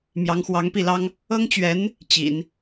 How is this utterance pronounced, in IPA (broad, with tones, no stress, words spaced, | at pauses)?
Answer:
mjɑ˧˥ŋxwɑ˧˥ŋpi˥˩lɑ˥ŋ | ɤ˥ŋt͡ɕɥɛ˧˥n | t͡ɕḭ˨˩˦n